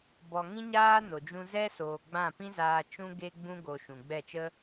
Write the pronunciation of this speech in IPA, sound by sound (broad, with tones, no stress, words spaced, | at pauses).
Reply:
bɔ˨ŋĩ˦ɲaː˦ no˨d͡ʒũ˧zɛ˦ soː˨ɡ͡bã˦˨pĩ˦zaː˧ t͡ʃũ˧ɡe˧ɡ͡bũ˧ ɡo˧ ʃũ˨ɡ͡bɛ˦˨t͡ʃə˦